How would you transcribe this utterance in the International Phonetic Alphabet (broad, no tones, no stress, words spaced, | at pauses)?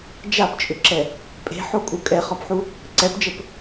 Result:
d͡ʒapt͡ʃʼʏǁɛ | pʼe̤ħokʼu kʼɛχɔpħu | ǀɛpd͡ʒəp